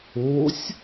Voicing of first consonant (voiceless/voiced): voiceless